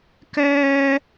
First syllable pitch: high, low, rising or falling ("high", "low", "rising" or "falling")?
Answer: high